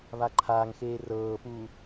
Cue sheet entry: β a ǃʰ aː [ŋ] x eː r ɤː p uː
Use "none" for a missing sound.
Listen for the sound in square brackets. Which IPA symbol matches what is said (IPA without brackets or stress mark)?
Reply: ŋ